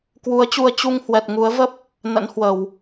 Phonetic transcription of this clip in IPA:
k w u˨˦ ə̯ t͡ɕ u˧ ə̯ t͡ɕ u˧ ŋ h w ɛ˨˩ t̚ ŋ u˨˦ ə̯ v ə˦˥ p̚ | n ə̰˧˥ n h w ə˧˩˨ w

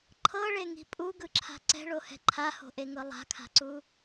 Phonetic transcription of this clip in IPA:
ǃʰ ɤ ɭ e ŋ i̤ pʼ u ɡ ɯ ǁʰ a̤ ǀ ɛ̤ ɭ o h ɛ̤ ǃʰ a h o̤ ʔ e ŋ ɤ lˠ a̤ kʰ a̤ ǀ u

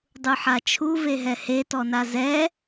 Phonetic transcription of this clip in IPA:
dˤ u ħ a t͡ʃʰ u v e ɦ ɛ h e t ɔ n a z ɛ

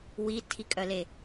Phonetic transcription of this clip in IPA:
w i tʰ i kʼ œ l e

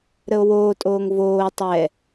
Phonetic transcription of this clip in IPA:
ɾ ə o̯ w oː tʼ oː ŋ v oː tˤ ɛ

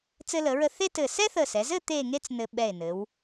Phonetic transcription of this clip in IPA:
t͡s ɘ˧ l ə˩˧ ɹ ə˧ θ e˥ t ɘ˧˩ s ɛ˥ θ ə˧˩ s ɛ˩˧ z ɘ˥˧ t̪ e˥˧ ŋ e˥ t͡s n ɘ˧ ɓ ɛ˧˩ e̯ n ɘ˩˧ w

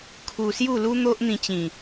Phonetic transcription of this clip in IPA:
kʰ u˧ s j u˥˧ l u˦ n̪ o˦ ʔ n̪ ĩ˧ t͡ɕ ĩ˨˩

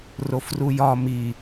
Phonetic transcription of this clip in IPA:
r o f r u j ɒ m i

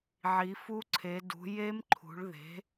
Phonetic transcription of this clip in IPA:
ʕ i˩˧ f u˦˥ ǀʰ e˩˧ d ṳ˩˧ j e˦˥ m ǃʰ ṳ˩˧ ɭ ð e̤˩˥

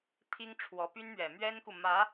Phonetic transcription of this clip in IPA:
t̪ʰ i˥ ŋ ʈ͡ʂʰ w ɔ˧˥ p y˥ n m ɥ ɛ˨˩ m ɥ ɛ˥ n k u˨ m ä˧˥

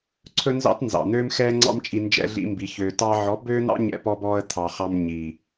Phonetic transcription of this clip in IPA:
ǀʰ ɵ˦ n z ɑ̰˦ t n z ɑ̰˨ n̪ øː˦ m x ɛː˦ ŋ͡ǀ ɑ̰˦ m t͡ʃʼ i˧ n d͡ʒ ɛ̰˧ ɮ ḭ˧ m b i˨ ç øː˨ t ɑ˧ ʕ ɔ˨˦ b øː˦ n̪ ɑ̰˦ ɲ ɛ̰˧ p ɔ˧ b ɔː˧ ə̯ t̪ʰ ɑ˨ χ ɑ˧ m ɲ iː˨

